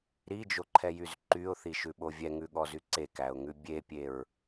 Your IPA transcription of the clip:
ɾ i d͡ʒ o ǃʰ ɛ j y z ǃ y ʊ̯ θ i ʃ ʉ ɓ o vʲ ɛ ŋ ʉ ɠ ɔ z y ǀ e k æ ʊ̯ ŋ ʉ bʲ e pʲ e ɹ

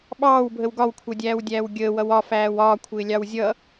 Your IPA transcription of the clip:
ɓ ɑː w bʱ ə w ɡ ɒ w kʷʰ ʌ dʲ æː w dʲ æː w ɡʲ əː w ʌ w ɒ f æː w ɒː kʷʰ ɪː lʲ ɑ w zʲ ʌ

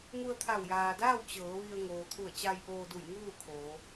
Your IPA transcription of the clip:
ŋ u˧ ə̯ t̪ʰ a˧˩ w j aː˩ d aː˥˨ w t͡ɕ ɤː˩˧ ʋ i˧ ə̯ ŋ oː˩ t̪ʰ u˧˩ ə̯ t͡ɕ a˧ j ʔ oː˧ d u˧˩ j ŋ uː˥˨ kʰ oː˩˧

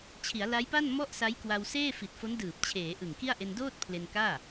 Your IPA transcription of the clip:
t͡ɕʰ i˩˦ a̯ l a˦˥ j p a˥˩ n m ɔ˥˩ ʔ s a˦˥ j k w a˧ w s eː˥˩ f i˨˩ t̚ f o˦˥ n d ɯː˨˩ p̚ t͡ɕʰ eː˩˦ ʔ ɯ˨˩ ŋ k i˥˩ a̯ ʔ e˧ n d oː˥˩ t̚ pʰ l e˧ n k aː˥˩

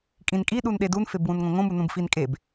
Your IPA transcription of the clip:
kʼ ĩ n kʼ i ɗ u n ɗ e d u n f e b w ũ n ŋ õ ŋ õ m u n ũ b f i n kʼ e b

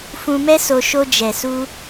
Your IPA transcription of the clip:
f ũ˧ m ɛ˦ s o˧ ʃ o˧ d͡ʒ ɛ˨ s u˧

